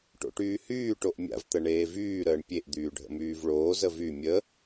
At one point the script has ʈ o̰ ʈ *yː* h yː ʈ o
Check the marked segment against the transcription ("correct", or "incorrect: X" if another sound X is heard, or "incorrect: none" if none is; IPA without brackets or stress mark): correct